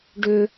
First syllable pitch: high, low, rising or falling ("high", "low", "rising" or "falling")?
high